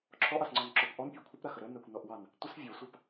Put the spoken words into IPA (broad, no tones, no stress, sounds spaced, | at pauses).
ǁʰ ɔ ʔ ɑ s ŋ͡ǀ ɔ n ǁ ɔ p ʔ ɔ n pʲ a kʷʰ ə p ɾ a x ə ɾ ə n a kʷ n ɔ ʔ w ɑ n | tʷ ə s vʲ ɔ sʷ a p